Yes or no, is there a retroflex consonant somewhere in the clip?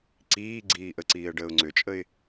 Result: yes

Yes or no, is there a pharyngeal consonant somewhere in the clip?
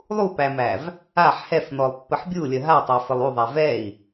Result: yes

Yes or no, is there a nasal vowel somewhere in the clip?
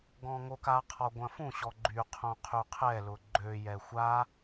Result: yes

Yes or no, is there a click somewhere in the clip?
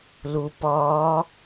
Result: no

